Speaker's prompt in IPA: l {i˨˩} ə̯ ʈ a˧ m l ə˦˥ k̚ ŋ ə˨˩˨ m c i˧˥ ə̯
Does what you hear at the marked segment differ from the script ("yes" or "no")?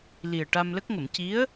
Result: no